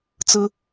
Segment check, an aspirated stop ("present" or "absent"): absent